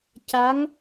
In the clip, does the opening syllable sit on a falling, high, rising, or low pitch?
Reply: rising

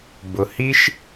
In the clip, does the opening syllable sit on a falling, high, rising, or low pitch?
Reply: low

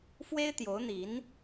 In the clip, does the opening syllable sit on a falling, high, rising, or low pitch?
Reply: high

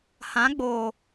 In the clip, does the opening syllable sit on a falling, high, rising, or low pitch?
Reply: rising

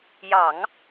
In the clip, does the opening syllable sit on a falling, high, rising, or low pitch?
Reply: low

